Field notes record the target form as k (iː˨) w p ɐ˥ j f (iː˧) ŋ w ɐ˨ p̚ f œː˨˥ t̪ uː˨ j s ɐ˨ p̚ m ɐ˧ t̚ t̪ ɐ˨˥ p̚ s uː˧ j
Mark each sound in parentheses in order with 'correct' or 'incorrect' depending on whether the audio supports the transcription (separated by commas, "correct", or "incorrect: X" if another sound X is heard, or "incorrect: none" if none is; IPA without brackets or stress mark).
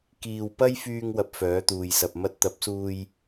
correct, incorrect: yː˧